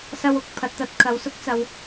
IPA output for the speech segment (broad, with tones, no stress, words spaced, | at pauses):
sɐ˧wʊ˧k̚ pʰɐ˨t̚t̪ɐ˧t̚ kʰɐ˨wsʊ˥k̚ t͡sɐ˨w